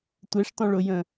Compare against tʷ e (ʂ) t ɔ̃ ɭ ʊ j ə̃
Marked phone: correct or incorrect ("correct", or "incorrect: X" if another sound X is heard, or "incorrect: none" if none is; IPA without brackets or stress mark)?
correct